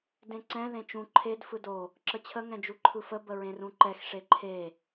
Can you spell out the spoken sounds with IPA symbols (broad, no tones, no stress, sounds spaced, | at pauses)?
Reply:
d ẽ ǀ ɛ̃ ð ẽ t͡ʃ ũ ǃʰ e d f ɯ d o | ǁ ə t͡ɕʰ ə ŋ ɛ̃ d͡ʒ u ǃʰ ɯ f ə b ə ɹ ẽ r ũ ǃ ɛ x ʂ e ǃʰ e